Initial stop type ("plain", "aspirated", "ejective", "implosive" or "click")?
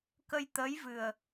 plain